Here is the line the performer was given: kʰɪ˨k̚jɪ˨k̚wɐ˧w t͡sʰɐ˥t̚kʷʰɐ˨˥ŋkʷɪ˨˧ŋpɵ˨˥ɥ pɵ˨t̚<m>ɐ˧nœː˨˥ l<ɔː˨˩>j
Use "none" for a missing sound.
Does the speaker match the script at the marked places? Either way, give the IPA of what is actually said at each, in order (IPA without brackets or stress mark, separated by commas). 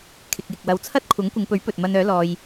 m, ɔː˧